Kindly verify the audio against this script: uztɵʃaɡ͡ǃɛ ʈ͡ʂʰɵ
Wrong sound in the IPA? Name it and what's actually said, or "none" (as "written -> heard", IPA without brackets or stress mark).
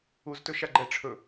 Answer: none